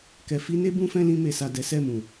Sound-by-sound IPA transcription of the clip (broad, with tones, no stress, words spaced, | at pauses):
kɛ˨fi˧ne˦ bũ˦fɛ̃˦lĩ˧ me˨sa˨ dɛ˨˦sɛ˦˨mũ˨